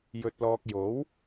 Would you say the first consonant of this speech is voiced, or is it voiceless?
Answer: voiced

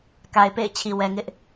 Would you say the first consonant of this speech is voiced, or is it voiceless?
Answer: voiceless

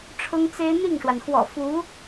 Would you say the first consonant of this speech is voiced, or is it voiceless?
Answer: voiceless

